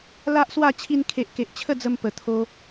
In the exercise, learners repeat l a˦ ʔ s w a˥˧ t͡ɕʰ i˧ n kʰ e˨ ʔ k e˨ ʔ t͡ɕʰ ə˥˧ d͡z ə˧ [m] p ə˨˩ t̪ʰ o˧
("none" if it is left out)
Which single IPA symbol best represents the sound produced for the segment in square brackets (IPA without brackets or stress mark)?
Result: m